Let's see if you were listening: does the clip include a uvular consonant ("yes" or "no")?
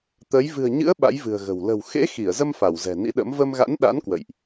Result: no